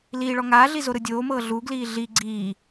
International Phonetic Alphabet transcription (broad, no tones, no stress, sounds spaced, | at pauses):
l iː ɭ ɔ ŋ aː ɮ i z o ɾ ɯ dʲ oː m ɤː ɮ u ɡ l iː ɮ i ɡ͡ǀ iː